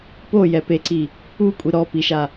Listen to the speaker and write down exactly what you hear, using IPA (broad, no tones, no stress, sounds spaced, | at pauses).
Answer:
p o j ɛ p e ǀ i | u kʷʼ i ɾ ɔ p i ʃ a